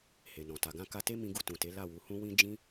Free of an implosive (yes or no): yes